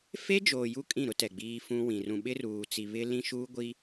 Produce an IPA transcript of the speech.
f e˦ d͡ʒ oː˨ j u˦ kʼ ĩ˦˨ ɾ ʊ˦ t ɛ˨ ɡ͡b iː˦ f ũ˦ w ĩ˨ r ũ˨ ɓ ɪ˦ r uː˨ t͡s i˨ β ɪ˦ l ĩ˦ ʃ uː˦ ɡʷ i˦

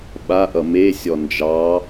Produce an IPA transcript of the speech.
ɓ a ʔ ʌ m e sʲ ɔ n d͡ʒ ɑ

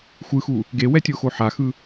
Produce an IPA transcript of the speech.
xʷ ɯ x u | ɡ e w ɛ tʲ o x o ħ a x ɯ

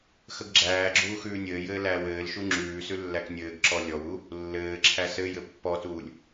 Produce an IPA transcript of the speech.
x ə ɡ ɡ͡ǁ æː ɡ͡ǁ uː x ʉː nʲ ɘː j ɘː l æː w ɘː l ʃ u ŋ͡ǁ ʉː s ʉ lː æ k nʲ ɘː ɡ ǁ ɔ lʲ ɔ w u | lː ɘː ǁʰ æ s ɘ j ɘ pː ɔ t uː lʲ

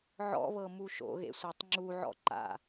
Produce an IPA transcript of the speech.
ʕ ɔ̰ β ɤ m u ʃ o̰ ɣ ḛ sʷ æ tˤ ŋ͡ǁ u ʕ ɔ̰ ǃ a̰

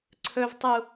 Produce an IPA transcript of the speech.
ǀʰ ɵ v tˤ u

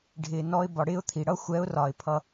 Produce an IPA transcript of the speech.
ɖʱ ɪː˨ n ɔ˧ ɪ̯ b ɒ˨ ɽ ɪː˦ ʊ̯ t̪ʰ i˨ ɽ ʌ˦ xʷ ɛ˨˦ ʊ̯ r ɒ˨ ɪ̯ pʰ ʌ˧

